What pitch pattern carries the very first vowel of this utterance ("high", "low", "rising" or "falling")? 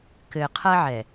low